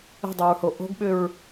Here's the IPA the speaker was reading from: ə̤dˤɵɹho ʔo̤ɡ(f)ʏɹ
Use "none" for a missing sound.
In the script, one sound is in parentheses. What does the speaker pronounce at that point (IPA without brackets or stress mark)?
ɓ